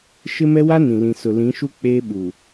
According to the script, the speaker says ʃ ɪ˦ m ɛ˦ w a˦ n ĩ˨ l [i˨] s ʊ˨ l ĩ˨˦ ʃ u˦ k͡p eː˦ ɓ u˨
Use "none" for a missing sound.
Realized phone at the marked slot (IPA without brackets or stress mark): ĩ˨